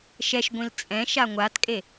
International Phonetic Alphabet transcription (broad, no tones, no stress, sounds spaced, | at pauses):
ʃ ɛ ʃ ɡʷ ĩ l t͡sʼ ɛ̃ ʃ a ŋʷ a t kʼ e